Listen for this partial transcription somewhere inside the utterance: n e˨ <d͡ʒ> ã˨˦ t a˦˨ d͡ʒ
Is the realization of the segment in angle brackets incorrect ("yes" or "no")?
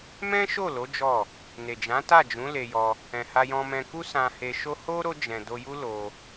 no